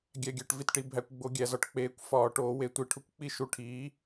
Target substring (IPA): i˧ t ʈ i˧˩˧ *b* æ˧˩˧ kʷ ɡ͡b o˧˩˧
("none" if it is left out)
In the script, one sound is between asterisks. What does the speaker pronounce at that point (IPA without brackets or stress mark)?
bʱ